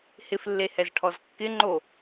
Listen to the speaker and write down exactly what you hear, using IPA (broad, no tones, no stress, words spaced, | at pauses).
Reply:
hɪflːehɛzʈʰɔz kːɪŋ͡ǃo